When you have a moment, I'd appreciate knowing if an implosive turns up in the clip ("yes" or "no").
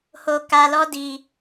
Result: no